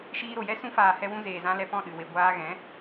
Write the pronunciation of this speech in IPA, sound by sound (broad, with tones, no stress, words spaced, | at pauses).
ʃiː˧ɾo˨jɛ˦ sũ˧faː˨hɛ˧wũ˧ zeː˨zã˧ lɛ˧pɔ̃˦˨ ɗɨ˨we˨ ɡʷaː˧ɣɛ̃˨˦